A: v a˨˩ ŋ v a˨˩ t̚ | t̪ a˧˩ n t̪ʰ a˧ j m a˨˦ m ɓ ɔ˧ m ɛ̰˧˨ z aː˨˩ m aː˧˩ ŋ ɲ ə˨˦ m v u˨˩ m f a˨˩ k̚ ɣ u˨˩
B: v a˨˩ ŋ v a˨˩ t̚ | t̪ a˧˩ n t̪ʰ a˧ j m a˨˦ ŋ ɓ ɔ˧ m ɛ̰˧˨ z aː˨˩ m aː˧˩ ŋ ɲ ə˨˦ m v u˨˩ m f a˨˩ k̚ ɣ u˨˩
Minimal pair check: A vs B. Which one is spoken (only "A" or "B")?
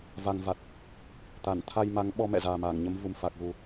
B